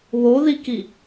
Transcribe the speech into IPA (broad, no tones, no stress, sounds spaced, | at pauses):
β o ð i k i